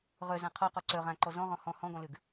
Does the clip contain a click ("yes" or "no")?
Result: yes